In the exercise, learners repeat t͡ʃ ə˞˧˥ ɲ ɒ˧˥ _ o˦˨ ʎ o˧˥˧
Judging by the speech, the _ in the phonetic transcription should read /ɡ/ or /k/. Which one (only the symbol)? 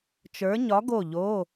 ɡ